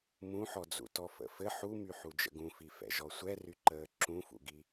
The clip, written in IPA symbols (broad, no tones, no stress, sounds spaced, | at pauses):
m ũ ħ ɔ d͡z ṵ t ɔ f ə̰ f ɘ ħ u m y ħ u d͡ʒ ə̰ ɡ ũ f i f ɛ̰ ʒ ɔ sʷ ɛ r y ǃ əː ǁ ũ f ṵ ɡ i